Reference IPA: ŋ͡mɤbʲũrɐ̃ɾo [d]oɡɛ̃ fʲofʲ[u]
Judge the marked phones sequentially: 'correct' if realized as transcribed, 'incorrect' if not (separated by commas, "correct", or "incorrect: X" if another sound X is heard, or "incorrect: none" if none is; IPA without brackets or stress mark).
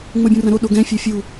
incorrect: ɗ, correct